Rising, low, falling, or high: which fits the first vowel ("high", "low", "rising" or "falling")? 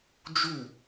falling